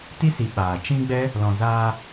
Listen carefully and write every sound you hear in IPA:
ti˦si˨ ɓaː˨t͡ʃĩ˦ ɡ͡bɛ˦ | lɔ̃˨zaː˧

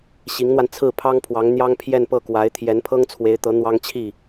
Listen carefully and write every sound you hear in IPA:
ɕi˧˥ŋn̪wa˧n t͡sʰɹ̩˥˩pʰɑ˥ŋpʰwɑ˧˥ŋ n̪jɑ˥ŋpʰjɛ˥˧npɤ˥˩kwa˧˥ɪ̯ t̪ʰjɛ˧˥npʰɤ˥ŋt͡sʰwe˧˥ɪ̯t̪ɤ˧˥ n̪wɑ˥ŋt͡ɕʰi˥˩

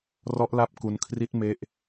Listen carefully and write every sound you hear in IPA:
rɔ˦˥ʔla˦˥p̚ ku˧nkʰri˦˥t̚ me˦˥ʔ

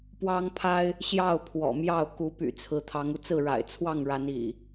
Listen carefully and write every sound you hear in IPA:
pwɑ˦ŋpʰa˦ɪ̯ | ɕjɑ˥˨ʊ̯ pʰwɔ̰˨˩mjɑ˥˨ʊ̯ ku˨˦py̰˨˩ t͡sʰɹ̩˨˦t̪ʰɑ˨˦ŋu˧t͡sɹ̩˥˨ ɻa̰˨˩ɪ̯t͡sʰwɑ˥˨ŋɻa˨˦n ḭ˨˩

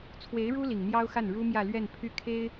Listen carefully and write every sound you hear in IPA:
t͡sʰwe˧˥ɪ̯ɻu˥ li˨˩ŋn̪jɑ˥ʊ̯xa˥˩n ɻu˥mjä˥˧ lɥɛ˥˧n pʰy˥˩kʰe˥ɪ̯

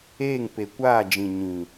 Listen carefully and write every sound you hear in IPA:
eː˦˨ŋ pe˨kʷaː˦˨ d͡ʒĩ˨ɲĩ˨

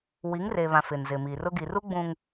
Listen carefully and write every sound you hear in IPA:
wi˨˦ŋre˨βã˨ fɪ˨nzɪ˨mi˨rʊ˦ ɡi˨ru˦ɡ͡bũ˨ŋ

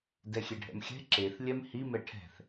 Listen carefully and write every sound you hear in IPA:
dɛxʲeɖʱɛ̰mxʲɛ̤ ǁeθ lʲɛmhi mɛʈʰɛ̤θ

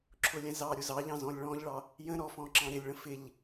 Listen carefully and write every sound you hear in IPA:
ǁʰʊlʲɛ̃zɑɾʲʊ zɑʎɑ̃ zɔ̃lʲɭɔ̃ʎɭɑ | jə̃ ɾɔfɔ̃ ǁɑ̃ɾɪlʲɭə̃ fɪʎ

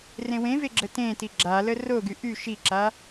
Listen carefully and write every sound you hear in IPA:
rẽwẽve ɡ͡ǁətẽti ɡ͡ǁalə roɡy ʔy ʃiǁa

